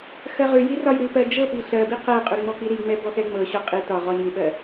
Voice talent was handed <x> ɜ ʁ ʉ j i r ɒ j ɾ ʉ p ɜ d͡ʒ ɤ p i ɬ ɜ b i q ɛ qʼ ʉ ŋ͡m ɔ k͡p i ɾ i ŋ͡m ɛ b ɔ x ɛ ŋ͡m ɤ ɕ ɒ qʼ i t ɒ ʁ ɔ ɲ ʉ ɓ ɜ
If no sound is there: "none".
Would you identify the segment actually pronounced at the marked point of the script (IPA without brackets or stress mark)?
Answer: x